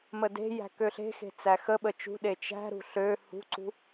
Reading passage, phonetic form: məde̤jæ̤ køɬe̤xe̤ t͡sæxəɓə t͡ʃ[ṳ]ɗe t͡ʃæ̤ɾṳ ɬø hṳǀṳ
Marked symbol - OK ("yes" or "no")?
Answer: yes